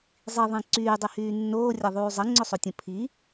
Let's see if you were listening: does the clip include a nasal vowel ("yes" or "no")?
yes